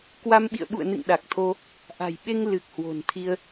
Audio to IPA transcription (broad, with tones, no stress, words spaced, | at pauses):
kwa˧mɓḭ˧˨ə̯ɓṵ˧˨ə̯nɨ̰˧˨ŋ ɗa˨˩k̚t̪ʰo˧ | ʔa̤˨˩jɓe˧ŋ lɨ˨˩k̚ hwo̤˨˩nt̪ʰi˧ə̯